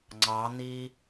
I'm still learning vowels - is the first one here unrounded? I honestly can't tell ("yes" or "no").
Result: yes